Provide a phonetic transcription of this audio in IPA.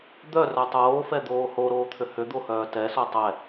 d̪ œ r œ tˤ oː f ɛ d̪ oː h o ɾ oː t̪ʰ ʏ h ʏ d̪ o h œː t ɛ s o tˤ ɛ

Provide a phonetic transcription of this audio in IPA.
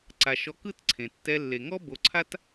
ǀ a˨ ʃ ɔ˧ k ɯ˦ t ǀʰ ẽ˨ tː ɛ˧ lː e˨ ŋ ɔ˦ b o˨ ǀʰ a˦ t

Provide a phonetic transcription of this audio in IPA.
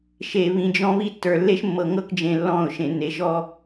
ʃ e˨ β ĩ˨ d͡ʒ ɔ̃˦ β i˦ tː ə˞˨ lː e˦ ʃ mː ɤ˨ ŋ ɤ˦ k d͡ʒ ẽ˨ lː ɔ̃˦˨ ʊ̯ ʃ ẽ˨ n e˨ ʒ ɔ˦

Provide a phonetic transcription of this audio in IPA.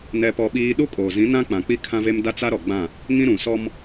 n ɛ˦ p ɔ˦ ɓ iː˦ ɗ u˦ kʼ oː˨ z ĩ˨˦ n ã˦ k͡p ã˨ k͡p i˦ kʰ ã˦ v e˦ m d a˦ t͡s a˦ ɾ ɔ˨ ɡ͡b ã˦˨ | ŋ ĩ˦ ɾ ũ˨ s ɔ˦ m

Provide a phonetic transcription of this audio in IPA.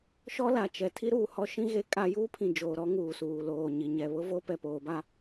ʃ ɔ˦ l a˨ t͡ʃ ɛ˨ tʰ i˦ ɾ uː˨ h ɔ˦ ʃ ĩ˦ ɣ e˦ kʼ a˦ j uː˦ pʰ ĩ˨ d͡ʒ oː˨ ɾ ɔ˦ ŋ uː˨ s uː˨ l oː˨ ɲ i˨ ɲ ɛ˨ β ʊ˦ v o˦ p ɛ˨ p oː˨˦ b a˦

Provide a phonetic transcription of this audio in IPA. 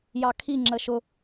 j ɑ kʰ i ŋ͡ǁ ə ʃ ʊ

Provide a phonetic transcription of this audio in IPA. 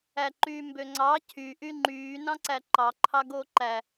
æ ǃ yː m b ø ŋ͡ǀ ɑ cʰ y ʔ y ŋ͡ǃ yː n ɑ̃ ǀ æ ǃ ɑ ǃʰ ɑ ɡ oː ǃ æ

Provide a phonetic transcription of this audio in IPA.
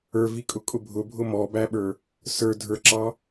ə˞ v i kʼ ʊ kʼ ʊ bʱ ʊ bʱ ʊ m ɔ b æ ɓ ə˞ | s ə˞ dʱ ə˞ ǁ ɑ

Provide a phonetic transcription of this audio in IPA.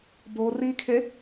b o r i kʰ e

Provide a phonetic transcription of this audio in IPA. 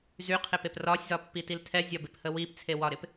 z y qʰ e p e p r ɒ sʲ z ɒ pː i t i l tʰ ɛ zʲ ɒ b ɪ p h ə w i p t͡sʰ e w ɒ ɾ ɪ p

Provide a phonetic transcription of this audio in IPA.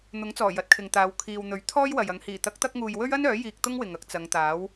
n̪ ʊ˨˥ ŋ t͡s ɔː˨˩ j ɐ˨˥ t̚ kʰ ɪ˨ ŋ t̪ aː˨˧ w kʰ iː˨ w n̪ ɵ˨˥ ɥ t̪ʰ ɔː˥ j w ɐ˨ j ɐ˨˧ ŋ h iː˨˩ t̪ ɐ˨˥ k̚ t̪ ɐ˧ k̚ ŋ uː˨ j w ɵ˥ ɥ ɐ˥ n œː˨˥ j iː˧ k̚ t̪ ʊ˥ ŋ w ɪ˨ ŋ ɐ˧ k̚ t͡s ɐ˨˧ ŋ t̪ aː˨˥ w

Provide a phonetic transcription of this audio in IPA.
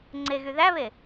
ŋ͡ǀ e ɣ y ð æ β e

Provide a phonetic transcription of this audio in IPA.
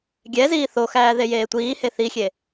ɡʲ ɛ z iː θ o x æː ð e j eː tʷ iː h e θ i xʲ e

